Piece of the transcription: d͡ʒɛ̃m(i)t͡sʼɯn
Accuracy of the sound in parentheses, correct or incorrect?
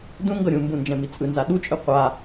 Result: correct